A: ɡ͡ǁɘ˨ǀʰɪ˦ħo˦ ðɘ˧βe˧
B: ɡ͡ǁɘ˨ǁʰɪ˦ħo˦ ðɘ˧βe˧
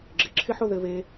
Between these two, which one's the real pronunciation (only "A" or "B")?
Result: B